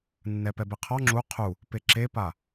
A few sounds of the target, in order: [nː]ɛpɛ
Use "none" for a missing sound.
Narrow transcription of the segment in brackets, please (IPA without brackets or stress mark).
nː